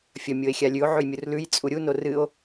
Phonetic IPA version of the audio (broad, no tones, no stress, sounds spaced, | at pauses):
fʲ ɐ mʲ o e̯ xʲ a lʲ ʉ o̯ ʕ ʉ j mʲ u r l ʉ j t͡sʼ u ɾʲ u n o r ɨ o̯